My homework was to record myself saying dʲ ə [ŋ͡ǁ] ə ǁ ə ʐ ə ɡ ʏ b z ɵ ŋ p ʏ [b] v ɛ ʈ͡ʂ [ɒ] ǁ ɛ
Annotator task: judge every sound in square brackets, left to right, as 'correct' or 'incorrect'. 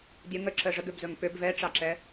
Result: incorrect, correct, incorrect

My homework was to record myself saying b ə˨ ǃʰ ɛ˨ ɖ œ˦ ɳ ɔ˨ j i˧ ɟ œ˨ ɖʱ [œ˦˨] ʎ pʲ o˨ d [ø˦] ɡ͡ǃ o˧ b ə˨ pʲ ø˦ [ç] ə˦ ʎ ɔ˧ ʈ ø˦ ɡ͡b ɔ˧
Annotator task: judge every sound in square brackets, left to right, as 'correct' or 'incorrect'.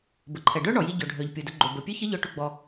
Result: incorrect, incorrect, correct

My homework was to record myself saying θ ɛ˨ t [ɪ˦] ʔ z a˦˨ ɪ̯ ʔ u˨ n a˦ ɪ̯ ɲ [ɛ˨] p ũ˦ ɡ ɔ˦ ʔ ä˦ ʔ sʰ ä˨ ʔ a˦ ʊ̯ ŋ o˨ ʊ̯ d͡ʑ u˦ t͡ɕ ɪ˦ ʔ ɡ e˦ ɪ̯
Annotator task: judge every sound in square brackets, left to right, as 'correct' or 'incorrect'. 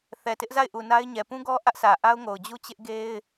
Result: correct, correct

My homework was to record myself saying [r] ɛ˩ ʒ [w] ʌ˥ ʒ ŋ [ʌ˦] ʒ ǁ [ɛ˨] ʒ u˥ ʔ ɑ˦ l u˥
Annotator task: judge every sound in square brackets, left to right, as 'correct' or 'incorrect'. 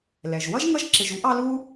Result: incorrect, correct, correct, incorrect

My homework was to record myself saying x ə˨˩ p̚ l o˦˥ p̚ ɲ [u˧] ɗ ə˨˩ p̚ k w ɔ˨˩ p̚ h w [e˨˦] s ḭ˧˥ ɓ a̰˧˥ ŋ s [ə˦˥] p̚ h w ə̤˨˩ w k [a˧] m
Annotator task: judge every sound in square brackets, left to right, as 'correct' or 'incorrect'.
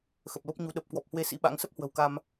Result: incorrect, correct, correct, correct

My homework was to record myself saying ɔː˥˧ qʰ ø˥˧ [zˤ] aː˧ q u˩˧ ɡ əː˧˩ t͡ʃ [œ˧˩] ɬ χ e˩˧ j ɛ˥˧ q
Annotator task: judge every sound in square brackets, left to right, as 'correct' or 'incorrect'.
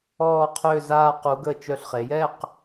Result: incorrect, correct

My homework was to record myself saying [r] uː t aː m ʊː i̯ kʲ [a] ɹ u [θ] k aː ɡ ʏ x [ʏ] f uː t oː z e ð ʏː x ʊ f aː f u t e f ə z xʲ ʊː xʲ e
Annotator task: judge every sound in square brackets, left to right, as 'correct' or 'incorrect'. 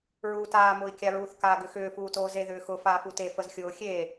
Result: incorrect, correct, correct, incorrect

